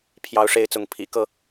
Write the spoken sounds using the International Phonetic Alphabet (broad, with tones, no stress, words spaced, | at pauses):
pʰjɑ˨˦ʊ̯ʂe˨˦ɪ̯ t͡sʊ˨˦ŋ pʰḭ˨˩kɤ˥˨